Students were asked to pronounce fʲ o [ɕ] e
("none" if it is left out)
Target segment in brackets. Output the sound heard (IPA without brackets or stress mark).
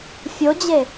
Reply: d͡ʑ